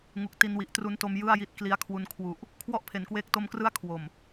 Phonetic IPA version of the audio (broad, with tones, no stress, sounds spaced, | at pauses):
ŋ u˨˩ k̚ t i˧ n w i˨˩ ʔ t r u˦˥ n t o˧ m j ɯ˥˩ a̯ j i˦˥ t̚ k l i˧ a̯ kʰ w u˧ n kʰ w u˨˩ ʔ | kʰ w ɔ˥˩ ʔ pʰ e˩˦ n k w eː˦˥ k̚ t o˧ m k r ɯ˦˥ a̯ kʰ w o˨˩ m